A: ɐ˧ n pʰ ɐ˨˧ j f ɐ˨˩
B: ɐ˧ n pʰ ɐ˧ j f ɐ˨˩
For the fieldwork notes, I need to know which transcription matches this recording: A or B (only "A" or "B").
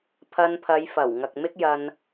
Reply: A